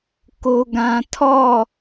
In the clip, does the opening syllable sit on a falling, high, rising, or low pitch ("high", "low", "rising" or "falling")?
high